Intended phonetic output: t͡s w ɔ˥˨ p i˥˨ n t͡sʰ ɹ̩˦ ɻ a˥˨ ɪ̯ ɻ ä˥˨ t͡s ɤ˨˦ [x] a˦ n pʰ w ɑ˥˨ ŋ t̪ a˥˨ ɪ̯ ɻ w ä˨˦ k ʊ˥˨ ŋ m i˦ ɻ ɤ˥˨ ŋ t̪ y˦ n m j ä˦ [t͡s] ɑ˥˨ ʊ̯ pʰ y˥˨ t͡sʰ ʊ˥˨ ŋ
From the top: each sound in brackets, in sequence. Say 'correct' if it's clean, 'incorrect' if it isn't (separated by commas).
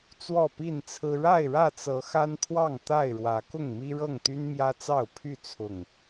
correct, correct